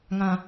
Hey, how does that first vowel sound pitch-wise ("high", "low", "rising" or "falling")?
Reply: low